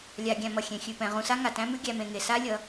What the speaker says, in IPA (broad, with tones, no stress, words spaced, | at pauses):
lʲa˧ ɡʲæ̃˧mʌ˨ xʲẽ˧ xʲʉ˨pɛ̃˨ ʁũ˧sa˦ŋa˨ tæ̃˦mʉ˦ ɡʲæ˧mẽ˧ŋe˧ sa˦lʲʌ˨˦